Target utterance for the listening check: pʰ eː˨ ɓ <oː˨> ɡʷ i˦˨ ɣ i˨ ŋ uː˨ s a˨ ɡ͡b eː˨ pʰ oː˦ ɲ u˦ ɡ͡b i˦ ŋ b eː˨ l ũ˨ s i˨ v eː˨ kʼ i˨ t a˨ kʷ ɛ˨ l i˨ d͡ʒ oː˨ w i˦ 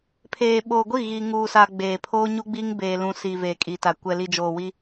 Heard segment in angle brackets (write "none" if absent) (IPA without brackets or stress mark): oː˨